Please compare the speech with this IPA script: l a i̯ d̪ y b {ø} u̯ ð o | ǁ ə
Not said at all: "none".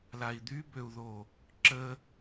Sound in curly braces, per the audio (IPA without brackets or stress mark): ø